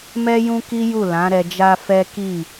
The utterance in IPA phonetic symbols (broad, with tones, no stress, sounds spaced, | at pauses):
m ɛ˦ j ũ˦ k i˦ j u˦˨ l ã˨˦ ɾ ɛ˧ d͡ʒ a˦ f ɛ˦ k i˦˨